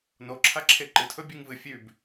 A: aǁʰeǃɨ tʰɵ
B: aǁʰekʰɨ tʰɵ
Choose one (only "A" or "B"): A